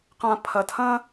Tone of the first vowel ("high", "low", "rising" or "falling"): low